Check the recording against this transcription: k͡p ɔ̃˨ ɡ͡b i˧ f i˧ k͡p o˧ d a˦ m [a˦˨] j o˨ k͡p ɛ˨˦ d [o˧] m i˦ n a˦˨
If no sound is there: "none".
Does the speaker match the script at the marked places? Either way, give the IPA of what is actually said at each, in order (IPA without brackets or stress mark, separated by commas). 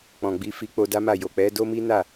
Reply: a˦˨, o˦